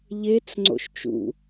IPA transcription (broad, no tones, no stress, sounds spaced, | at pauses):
ʎ e t͡s ŋ͡ǀ o̰ ʃ t͡ʃ ṵ